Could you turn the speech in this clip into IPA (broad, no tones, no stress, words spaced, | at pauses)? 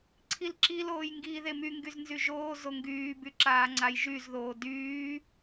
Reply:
ǀʰilǁiloːj ŋɡiːðemyŋɡyz nzyʒoːzo ŋɡyːby ǁaːŋ͡ǀajʒyzðoː dyː